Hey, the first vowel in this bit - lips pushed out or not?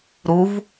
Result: yes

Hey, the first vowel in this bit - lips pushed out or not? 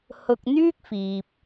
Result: yes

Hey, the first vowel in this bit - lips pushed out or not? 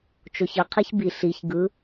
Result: yes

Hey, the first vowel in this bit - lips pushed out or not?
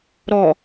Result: yes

